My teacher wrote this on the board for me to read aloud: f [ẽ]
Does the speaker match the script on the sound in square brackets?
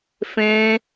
yes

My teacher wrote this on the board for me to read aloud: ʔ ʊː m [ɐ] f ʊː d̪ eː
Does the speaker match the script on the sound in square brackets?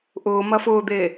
yes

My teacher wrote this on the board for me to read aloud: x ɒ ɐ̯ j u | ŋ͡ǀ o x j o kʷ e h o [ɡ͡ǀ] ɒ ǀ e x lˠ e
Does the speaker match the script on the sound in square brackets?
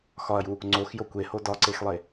no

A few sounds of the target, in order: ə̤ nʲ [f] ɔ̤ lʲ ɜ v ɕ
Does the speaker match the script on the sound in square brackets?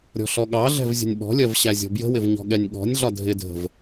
no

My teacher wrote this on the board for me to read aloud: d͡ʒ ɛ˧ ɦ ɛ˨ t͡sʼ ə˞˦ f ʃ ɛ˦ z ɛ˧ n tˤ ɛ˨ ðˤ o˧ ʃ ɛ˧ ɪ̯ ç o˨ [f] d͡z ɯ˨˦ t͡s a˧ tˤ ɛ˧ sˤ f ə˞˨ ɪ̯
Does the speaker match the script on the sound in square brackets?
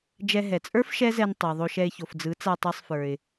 yes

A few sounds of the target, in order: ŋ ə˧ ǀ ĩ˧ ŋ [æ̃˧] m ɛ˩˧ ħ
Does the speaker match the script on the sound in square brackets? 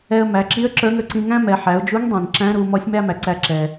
no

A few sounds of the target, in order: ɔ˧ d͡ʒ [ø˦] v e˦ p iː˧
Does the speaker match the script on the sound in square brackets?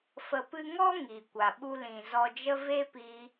no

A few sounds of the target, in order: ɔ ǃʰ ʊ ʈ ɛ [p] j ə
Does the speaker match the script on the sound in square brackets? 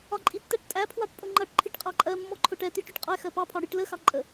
no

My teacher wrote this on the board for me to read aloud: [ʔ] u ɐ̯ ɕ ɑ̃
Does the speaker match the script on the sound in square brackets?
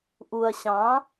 yes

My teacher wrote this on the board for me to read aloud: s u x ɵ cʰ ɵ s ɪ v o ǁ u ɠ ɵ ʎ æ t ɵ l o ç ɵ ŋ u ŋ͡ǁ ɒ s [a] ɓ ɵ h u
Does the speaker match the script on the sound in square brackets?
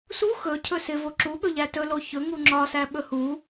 no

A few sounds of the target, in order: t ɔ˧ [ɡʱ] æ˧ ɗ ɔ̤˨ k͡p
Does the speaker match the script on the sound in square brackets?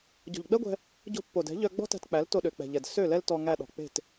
no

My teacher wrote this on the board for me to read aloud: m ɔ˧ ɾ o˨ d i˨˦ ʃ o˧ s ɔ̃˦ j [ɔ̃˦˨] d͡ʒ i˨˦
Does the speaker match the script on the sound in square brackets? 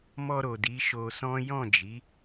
yes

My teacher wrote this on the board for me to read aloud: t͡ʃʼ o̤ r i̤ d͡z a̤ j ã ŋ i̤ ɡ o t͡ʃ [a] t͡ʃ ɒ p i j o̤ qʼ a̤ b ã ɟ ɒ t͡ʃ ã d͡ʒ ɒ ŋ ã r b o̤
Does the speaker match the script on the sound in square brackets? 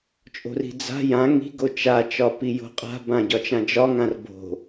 yes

